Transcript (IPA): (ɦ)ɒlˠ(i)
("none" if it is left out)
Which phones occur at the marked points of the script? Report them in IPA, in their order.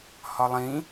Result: h, ĩ

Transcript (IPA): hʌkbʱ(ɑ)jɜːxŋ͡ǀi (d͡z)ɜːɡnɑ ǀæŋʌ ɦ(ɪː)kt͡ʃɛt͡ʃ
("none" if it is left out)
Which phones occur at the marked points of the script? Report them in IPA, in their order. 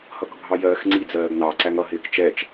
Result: ɑ, d͡z, ɪː

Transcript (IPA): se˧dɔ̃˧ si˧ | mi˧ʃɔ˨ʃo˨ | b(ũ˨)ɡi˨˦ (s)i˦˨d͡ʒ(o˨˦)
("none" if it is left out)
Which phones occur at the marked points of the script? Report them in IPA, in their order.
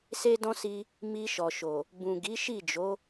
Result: ũ˨, ʃ, o˨˦

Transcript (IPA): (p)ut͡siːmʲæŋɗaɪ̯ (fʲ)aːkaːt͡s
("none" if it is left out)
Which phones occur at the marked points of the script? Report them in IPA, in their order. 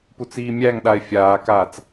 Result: p, fʲ

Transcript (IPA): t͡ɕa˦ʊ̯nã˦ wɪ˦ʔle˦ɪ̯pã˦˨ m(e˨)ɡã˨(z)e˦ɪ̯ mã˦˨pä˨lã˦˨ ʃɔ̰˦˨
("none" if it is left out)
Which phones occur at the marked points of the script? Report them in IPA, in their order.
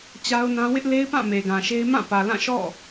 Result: e˨, ʃ

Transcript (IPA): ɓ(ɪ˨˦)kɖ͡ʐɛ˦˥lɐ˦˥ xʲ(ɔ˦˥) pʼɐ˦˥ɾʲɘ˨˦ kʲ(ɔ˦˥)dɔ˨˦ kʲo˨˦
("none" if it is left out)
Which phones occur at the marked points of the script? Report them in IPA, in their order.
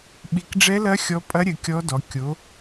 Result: i˨˦, ɔ˦˥, ɔ˦˥

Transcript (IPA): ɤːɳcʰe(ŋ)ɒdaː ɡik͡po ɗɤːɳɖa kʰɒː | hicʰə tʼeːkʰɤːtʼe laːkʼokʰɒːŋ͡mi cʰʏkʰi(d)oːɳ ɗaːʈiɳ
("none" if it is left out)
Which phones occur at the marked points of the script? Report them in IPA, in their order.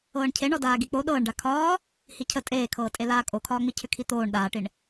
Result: ɳ, t̪

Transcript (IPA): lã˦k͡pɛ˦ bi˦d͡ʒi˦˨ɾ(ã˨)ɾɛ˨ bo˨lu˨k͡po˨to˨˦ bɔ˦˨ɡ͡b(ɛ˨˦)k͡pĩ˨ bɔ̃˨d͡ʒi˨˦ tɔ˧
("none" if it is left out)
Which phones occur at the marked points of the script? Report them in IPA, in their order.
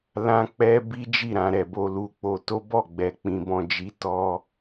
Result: ã˨, ɛ˨

